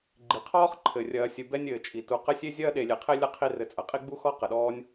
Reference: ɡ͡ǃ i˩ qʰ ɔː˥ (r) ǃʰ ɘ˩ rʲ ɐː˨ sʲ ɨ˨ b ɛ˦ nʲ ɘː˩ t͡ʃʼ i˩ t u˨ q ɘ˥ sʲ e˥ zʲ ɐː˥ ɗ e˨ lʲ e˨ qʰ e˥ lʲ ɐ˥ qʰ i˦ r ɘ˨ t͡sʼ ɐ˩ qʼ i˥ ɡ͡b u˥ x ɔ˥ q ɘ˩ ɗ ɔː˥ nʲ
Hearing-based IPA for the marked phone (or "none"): χ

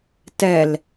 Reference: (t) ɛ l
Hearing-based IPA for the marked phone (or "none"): t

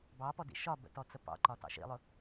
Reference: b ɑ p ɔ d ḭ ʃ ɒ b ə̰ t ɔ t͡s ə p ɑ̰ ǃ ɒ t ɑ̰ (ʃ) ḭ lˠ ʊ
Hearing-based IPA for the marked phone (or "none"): ʃ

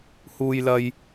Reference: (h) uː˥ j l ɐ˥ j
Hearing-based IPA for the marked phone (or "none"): h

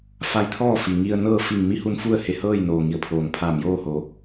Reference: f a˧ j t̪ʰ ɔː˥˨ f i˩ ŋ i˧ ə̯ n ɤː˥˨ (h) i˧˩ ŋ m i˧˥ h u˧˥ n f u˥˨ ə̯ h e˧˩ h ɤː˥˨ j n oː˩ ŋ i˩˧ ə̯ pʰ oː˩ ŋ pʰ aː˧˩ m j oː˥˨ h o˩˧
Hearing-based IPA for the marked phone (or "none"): f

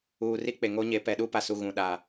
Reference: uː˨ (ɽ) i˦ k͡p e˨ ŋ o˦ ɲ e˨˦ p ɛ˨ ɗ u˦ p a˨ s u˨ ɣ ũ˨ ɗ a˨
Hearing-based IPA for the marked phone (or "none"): r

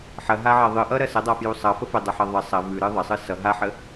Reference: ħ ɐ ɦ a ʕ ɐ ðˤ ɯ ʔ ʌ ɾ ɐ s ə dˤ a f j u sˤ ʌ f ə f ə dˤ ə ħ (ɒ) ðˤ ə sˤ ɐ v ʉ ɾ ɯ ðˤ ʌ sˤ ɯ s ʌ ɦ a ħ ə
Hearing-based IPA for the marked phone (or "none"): ʌ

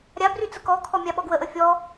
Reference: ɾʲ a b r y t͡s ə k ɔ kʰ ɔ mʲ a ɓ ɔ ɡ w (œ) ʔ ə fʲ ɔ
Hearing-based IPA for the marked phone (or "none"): ə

